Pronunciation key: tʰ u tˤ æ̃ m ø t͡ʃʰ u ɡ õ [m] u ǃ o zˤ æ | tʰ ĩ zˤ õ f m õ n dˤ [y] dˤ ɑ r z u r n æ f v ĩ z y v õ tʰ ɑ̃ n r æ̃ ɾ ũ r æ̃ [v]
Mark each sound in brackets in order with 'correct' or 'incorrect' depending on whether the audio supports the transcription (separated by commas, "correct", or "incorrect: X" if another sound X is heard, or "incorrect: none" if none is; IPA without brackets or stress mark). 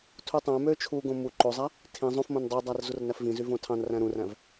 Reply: correct, correct, correct